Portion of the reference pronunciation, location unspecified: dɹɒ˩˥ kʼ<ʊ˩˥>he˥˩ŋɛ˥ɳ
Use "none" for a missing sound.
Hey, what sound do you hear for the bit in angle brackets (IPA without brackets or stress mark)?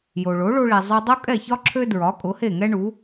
ʊ˩˥